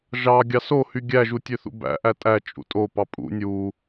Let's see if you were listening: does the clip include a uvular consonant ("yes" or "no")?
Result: no